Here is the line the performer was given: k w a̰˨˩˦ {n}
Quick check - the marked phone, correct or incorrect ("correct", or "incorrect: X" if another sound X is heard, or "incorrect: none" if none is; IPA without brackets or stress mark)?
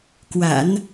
correct